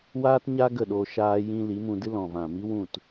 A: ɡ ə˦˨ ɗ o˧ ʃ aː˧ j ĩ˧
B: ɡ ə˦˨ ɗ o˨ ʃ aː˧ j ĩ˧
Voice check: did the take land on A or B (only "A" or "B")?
A